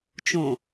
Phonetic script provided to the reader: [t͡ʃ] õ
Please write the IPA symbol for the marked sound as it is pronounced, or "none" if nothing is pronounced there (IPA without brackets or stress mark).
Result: t͡ʃ